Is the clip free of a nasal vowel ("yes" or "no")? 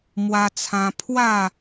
no